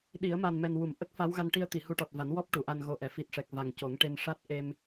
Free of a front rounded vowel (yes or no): yes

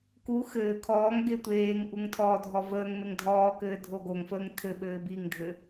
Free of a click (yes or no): yes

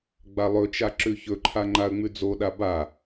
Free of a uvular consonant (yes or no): yes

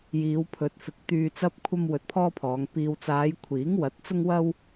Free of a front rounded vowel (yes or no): no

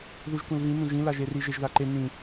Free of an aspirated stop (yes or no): yes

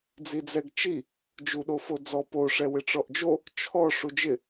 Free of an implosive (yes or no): no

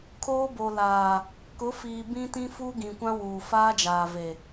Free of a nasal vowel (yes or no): no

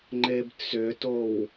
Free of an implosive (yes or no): yes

